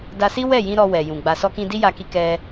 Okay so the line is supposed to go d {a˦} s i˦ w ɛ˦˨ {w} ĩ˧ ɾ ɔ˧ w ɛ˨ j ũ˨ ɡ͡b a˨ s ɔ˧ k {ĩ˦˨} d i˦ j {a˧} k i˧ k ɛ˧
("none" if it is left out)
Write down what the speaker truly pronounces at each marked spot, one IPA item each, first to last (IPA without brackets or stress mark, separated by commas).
a˧, j, ĩ˧, a˧